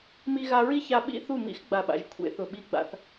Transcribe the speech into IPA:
mi˧ ɣa˧ɹi˦ça˧ ɓḭ˦ θu˦˨mḭ˦x ɡ͡ba˨ɓa̰˨ʒ kʷʰḛ˧ θʊ˨ɓi˧ ɡ͡ba̰˧θ

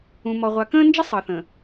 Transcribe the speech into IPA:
ũ˨ mɔ˨ʁʷa˨kə̃ː˦nd͡ʒə˦ sˤɤ˨θə̃˨

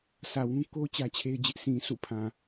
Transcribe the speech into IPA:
sʰä˨wũ˦ ko˦ t͡ɕä˦t͡ɕʰe˦ɪ̯d͡ʑɪ˦ʔ sĩ˨sʰṵ˦˨pʰã˨

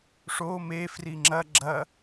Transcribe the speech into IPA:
ʂo mefri ŋ͡ǁɐ ɡ͡ǁɐ

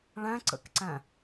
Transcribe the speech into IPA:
ɭæ̃ǀə̰kǀæ̃

